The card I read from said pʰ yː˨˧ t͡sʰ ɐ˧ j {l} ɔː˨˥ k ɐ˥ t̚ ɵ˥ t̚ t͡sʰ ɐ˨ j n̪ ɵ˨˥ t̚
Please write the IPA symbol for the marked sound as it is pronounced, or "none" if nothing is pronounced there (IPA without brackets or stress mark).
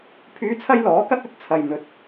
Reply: l